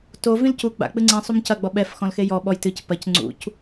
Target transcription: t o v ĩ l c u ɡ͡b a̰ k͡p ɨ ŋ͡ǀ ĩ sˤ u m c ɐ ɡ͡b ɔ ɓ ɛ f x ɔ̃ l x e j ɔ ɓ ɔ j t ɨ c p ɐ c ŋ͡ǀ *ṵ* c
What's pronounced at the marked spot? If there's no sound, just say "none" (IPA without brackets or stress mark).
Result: ṵ